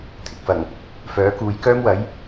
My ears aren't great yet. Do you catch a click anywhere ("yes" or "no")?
no